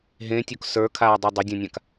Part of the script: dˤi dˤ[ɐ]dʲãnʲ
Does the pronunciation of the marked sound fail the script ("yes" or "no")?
no